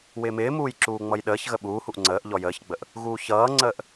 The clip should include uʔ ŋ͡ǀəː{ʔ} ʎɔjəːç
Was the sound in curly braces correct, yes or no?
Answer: yes